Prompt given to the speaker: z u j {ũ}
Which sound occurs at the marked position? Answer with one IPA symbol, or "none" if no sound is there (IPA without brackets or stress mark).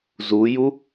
u